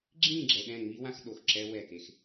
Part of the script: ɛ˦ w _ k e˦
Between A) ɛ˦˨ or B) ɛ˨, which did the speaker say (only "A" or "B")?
A